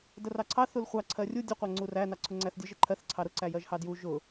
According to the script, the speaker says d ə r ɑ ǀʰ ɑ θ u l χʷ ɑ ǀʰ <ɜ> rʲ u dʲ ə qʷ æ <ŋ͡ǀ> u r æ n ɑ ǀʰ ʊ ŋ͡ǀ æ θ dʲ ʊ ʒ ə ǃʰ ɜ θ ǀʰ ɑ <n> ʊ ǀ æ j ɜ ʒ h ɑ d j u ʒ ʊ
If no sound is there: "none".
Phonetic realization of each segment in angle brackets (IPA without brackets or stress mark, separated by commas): ɜ, ŋ͡ǀ, ɾ